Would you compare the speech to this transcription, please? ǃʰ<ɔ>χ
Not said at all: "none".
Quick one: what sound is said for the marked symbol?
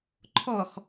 ɔ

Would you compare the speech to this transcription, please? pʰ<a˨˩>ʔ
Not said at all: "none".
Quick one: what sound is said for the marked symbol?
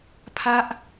a˦˥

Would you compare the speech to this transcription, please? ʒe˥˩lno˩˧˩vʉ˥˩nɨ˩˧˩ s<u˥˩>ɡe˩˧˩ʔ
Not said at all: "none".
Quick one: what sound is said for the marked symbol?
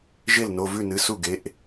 u˥˩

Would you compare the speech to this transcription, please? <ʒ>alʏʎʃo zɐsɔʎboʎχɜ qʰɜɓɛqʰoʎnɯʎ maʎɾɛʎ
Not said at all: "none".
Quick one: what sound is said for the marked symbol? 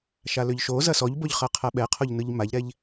ʃ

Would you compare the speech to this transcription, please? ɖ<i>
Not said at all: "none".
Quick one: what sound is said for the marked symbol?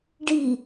i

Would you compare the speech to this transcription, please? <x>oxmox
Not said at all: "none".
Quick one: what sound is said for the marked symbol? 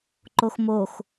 ǃ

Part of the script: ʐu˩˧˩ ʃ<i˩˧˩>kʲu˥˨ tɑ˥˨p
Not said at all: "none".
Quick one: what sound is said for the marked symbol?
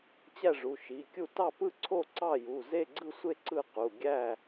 i˩˧˩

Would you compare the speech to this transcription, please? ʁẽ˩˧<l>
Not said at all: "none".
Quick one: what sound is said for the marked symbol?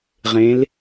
l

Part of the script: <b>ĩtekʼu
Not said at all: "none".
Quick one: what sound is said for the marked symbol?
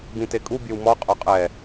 b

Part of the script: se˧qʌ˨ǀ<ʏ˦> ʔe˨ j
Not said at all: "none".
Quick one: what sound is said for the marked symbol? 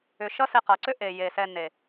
ʏ˦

